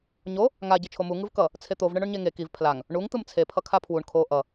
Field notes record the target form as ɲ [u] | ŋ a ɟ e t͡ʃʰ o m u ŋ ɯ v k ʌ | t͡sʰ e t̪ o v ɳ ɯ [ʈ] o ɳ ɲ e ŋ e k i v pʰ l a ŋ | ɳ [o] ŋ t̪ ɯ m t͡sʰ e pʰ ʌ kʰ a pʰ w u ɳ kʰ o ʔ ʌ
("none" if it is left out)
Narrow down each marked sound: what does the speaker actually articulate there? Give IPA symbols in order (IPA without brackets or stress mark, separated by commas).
o, ɳ, u